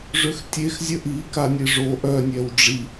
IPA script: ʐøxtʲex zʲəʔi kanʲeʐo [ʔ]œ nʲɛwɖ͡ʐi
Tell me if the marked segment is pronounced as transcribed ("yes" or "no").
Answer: yes